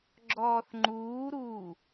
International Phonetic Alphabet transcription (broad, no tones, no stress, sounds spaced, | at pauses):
ɡ͡ǁ ɔː θ ŋ͡ǃ uː ɾ uː